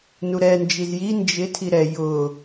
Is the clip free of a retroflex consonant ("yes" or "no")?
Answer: yes